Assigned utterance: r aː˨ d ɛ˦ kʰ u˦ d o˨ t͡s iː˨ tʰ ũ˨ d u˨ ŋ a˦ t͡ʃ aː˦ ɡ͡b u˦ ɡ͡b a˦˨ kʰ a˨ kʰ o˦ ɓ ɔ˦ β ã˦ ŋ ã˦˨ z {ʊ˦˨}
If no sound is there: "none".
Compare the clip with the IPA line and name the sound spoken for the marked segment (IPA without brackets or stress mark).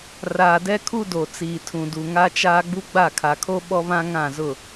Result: ʊ˦˨